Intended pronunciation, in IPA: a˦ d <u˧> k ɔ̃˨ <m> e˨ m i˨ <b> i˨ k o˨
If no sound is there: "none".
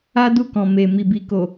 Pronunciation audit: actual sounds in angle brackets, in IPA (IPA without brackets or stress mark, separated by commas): u˦˨, m, b